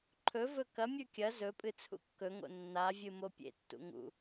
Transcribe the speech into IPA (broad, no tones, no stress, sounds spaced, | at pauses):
ǃʰ ɵ v ɵ k ɐ mʲ ʉ kʲ ɐ z ɵ pʼ ɨ t͡sʰ ṵ kː ɵ ŋ o̰ nː a vʲ ɨ m o pʲ ḛ tː ṵ ŋ ṵ